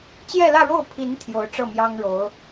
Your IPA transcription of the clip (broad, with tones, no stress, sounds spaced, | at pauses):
t͡ɕ j ɛ˥˧ l ä˥˧ ɻ o˥˩ ʊ̯ pʰ i˧˥ n t̪ʰ j o˧˥ ʊ̯ ʈ͡ʂ ɤ˥˩ m j ɑ˥ ŋ ɻ o˧˥ ʊ̯